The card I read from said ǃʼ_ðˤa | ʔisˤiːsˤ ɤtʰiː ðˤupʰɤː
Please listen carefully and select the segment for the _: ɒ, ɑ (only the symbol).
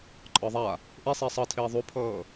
ɒ